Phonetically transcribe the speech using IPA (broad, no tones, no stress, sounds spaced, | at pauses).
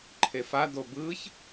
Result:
ǃʰ e f a d o b ɯ ç